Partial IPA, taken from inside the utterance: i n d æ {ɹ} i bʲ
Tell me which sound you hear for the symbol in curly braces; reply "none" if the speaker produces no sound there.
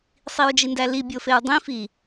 l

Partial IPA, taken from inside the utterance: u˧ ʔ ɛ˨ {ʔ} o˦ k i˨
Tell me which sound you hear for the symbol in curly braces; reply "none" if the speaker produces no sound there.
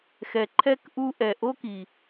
ʔ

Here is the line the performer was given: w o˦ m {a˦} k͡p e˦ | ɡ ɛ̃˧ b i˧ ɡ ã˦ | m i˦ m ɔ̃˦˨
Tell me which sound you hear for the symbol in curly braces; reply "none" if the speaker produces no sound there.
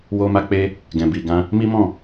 a˦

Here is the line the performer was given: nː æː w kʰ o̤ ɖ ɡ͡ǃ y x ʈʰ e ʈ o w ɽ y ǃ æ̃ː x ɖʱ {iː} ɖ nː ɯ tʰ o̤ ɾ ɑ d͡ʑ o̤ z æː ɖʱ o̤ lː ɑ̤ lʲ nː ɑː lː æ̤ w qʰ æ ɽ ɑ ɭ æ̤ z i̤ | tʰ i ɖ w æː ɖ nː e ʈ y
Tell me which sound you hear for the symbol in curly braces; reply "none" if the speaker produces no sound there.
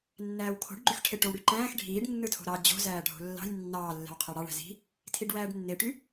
iː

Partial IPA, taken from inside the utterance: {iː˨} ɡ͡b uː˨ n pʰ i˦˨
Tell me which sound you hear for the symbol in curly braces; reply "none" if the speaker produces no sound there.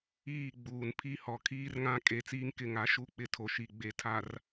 iː˦˨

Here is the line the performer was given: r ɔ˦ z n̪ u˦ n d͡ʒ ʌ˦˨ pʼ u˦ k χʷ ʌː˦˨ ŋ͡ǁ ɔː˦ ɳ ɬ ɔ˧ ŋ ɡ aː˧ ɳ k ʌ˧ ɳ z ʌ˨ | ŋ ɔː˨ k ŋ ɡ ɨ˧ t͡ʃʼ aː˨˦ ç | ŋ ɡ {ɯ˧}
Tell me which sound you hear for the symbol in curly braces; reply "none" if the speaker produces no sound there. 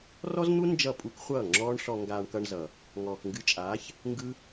ɯ˦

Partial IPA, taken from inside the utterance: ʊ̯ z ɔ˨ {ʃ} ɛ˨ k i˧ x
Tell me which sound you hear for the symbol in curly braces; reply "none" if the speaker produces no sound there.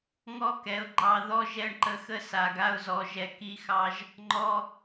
ʒ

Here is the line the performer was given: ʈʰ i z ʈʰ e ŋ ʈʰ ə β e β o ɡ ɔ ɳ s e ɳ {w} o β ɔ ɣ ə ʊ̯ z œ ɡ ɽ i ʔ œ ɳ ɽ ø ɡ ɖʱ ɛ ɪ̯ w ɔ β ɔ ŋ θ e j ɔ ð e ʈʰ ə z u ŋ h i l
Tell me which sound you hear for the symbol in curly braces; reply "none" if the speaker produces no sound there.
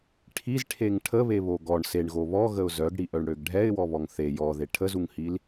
ɣ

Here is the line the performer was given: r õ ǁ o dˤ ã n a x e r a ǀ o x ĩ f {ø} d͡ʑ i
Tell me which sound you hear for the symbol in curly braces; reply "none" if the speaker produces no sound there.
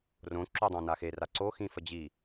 ə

